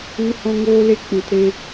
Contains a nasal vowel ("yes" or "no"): yes